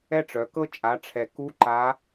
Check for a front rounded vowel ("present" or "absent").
present